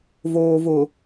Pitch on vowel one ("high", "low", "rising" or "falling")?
low